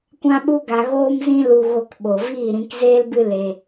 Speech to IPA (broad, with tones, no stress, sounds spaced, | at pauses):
kʷ ã˦ ɓ u˦ ɡ a˧ ɣ oː˦ m z ĩ˦ l u˧ ɣ o˧ k ɓ o˨ v iː˦˨ ɾ ĩ˧ k z eː˦ l b ɨ˦ l e˧